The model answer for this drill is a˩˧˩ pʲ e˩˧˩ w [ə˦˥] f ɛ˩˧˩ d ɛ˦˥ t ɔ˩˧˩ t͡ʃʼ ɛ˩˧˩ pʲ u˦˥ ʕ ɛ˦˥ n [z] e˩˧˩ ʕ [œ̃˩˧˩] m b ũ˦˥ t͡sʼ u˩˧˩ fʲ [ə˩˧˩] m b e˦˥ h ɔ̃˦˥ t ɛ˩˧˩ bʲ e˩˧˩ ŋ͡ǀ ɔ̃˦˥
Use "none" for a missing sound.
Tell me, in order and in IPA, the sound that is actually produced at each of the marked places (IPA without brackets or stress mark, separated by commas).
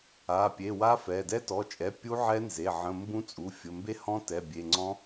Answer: a˦˥, z, ə̃˩˧˩, ə˩˧˩